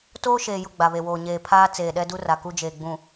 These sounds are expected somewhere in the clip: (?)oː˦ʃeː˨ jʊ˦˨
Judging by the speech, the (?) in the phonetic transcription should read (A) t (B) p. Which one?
A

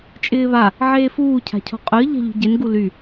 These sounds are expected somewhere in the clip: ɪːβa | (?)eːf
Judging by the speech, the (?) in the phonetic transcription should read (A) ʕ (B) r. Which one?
A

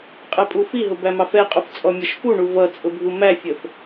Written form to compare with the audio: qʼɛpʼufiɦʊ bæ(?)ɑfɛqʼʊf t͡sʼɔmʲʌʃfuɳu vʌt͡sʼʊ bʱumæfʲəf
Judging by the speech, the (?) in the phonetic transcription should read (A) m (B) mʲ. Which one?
A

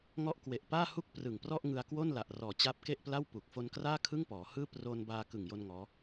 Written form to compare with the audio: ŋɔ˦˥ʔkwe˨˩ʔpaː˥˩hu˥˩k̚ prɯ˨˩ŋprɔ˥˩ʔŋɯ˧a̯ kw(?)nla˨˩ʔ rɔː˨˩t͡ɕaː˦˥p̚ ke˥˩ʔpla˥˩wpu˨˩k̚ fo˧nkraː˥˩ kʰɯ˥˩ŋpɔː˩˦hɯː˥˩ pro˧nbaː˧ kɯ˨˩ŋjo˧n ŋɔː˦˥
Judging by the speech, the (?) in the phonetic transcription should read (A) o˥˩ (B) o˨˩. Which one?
A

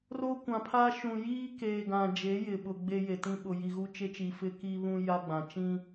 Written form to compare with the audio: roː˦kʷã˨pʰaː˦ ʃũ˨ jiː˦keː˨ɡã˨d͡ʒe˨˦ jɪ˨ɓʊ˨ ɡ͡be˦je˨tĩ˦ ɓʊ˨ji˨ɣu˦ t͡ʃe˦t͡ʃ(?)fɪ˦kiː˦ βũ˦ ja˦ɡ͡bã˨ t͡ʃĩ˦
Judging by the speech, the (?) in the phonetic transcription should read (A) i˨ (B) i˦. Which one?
A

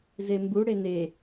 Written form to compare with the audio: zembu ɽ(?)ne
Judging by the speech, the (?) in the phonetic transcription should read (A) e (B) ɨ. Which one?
A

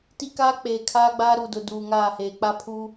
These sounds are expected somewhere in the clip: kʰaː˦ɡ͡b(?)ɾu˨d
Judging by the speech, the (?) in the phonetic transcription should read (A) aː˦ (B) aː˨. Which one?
A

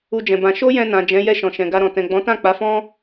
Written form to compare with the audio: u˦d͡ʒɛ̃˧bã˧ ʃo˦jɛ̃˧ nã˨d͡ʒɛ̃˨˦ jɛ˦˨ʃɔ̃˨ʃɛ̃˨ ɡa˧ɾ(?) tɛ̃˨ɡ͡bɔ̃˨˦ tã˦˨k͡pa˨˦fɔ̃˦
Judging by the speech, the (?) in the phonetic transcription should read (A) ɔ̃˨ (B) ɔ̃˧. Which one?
A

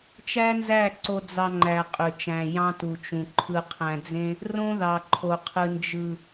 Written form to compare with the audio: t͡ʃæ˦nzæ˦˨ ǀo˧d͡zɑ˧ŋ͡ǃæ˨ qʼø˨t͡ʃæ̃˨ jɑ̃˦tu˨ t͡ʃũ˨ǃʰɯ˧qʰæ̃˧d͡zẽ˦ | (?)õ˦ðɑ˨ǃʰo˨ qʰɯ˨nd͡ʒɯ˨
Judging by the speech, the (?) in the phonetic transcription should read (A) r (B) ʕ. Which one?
A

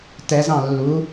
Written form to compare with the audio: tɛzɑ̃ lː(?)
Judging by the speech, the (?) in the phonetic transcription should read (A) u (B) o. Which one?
A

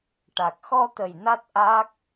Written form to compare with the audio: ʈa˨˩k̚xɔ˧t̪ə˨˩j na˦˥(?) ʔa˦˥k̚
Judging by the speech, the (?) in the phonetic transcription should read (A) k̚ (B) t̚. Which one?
B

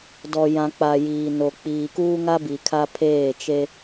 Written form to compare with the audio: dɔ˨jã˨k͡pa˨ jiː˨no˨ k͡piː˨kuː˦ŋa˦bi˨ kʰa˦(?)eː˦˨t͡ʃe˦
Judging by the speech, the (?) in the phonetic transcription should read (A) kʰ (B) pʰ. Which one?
B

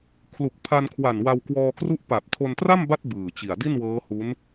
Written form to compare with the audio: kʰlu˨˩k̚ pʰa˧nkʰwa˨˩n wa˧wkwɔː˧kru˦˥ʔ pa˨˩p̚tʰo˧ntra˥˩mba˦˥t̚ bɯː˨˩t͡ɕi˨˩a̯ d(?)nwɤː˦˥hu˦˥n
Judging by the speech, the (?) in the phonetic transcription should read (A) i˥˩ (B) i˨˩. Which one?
A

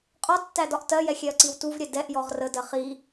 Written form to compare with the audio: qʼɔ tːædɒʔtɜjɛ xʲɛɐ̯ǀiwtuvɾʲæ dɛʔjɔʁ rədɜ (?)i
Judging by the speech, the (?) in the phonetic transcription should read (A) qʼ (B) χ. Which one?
B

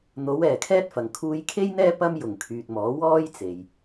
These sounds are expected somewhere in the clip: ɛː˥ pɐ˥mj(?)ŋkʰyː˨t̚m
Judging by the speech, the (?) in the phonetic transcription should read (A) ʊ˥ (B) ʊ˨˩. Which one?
B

